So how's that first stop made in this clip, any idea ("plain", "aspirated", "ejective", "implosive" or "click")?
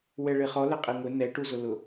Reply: ejective